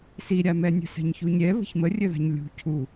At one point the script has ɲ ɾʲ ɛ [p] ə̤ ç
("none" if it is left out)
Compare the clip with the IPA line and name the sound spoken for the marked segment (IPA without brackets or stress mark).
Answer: β